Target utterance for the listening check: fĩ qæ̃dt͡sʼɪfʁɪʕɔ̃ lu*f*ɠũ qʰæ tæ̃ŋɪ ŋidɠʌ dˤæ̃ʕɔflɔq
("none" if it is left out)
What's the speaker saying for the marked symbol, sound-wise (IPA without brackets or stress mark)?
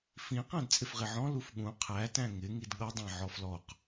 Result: f